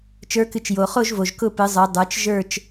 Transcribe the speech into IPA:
t͡ʃ ə˞˨˦ k ɨ˨ t͡ʃ j o˨ χ o˥˧ ʒ v o˨ ʒ k ʊ˥˧ p ɨ˨˦ zˤ ə˞˨˦ dˤ ə˞˨˦ t͡ʃ ʒ ə˞˥˧ t͡ʃ

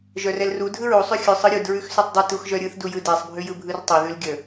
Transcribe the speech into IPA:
ʒ œ r ɛ l r u dʱ ɯ ɹ u sˤ ʉ xʲ ʉ sˤ ɯ ɾʲ u d ɹ ʉ x s ʉ tˤ dˤ ə t u x ʒ œ ɾʲ ɯ θ d u j ɯ d ɛ sˤ bʱ ʉ j ɯ bʱ ɯ r tˤ œ ð ʉ l ɡʲ ə

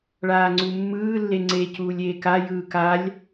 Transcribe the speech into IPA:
ɭ aː ŋ͡ǀ u mː ɯː lː e ŋ͡ǀ e c uː lʲ eː k a j ɯː k a lʲ

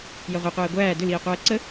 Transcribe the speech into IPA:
j ɐ ʁʷ ɛ qʷ æː ɡʷ æː d ʏ l iː qʷ æː ǀ ə

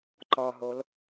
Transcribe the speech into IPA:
ǃ ɒ ɦ o l

